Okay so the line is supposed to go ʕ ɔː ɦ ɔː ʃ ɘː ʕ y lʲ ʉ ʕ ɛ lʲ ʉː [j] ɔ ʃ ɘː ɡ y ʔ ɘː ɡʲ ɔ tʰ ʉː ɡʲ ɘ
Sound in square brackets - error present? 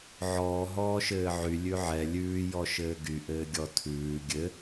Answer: no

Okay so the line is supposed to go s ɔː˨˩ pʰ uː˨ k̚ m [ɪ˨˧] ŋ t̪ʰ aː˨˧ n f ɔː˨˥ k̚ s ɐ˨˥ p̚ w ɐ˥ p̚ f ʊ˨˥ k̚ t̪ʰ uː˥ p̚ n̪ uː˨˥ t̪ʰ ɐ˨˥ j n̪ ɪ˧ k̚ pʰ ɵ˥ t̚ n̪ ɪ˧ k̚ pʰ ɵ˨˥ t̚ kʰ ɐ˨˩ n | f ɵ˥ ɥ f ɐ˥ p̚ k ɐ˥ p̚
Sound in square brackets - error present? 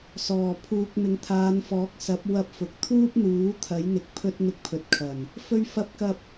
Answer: no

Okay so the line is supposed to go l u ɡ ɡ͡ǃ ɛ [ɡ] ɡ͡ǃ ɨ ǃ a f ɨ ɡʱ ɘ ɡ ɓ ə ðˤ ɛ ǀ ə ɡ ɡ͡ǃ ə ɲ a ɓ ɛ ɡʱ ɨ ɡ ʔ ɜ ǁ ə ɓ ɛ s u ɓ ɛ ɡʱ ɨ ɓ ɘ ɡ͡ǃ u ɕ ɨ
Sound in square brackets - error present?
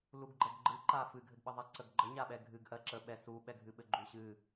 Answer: no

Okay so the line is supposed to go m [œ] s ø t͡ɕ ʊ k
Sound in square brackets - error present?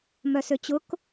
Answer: no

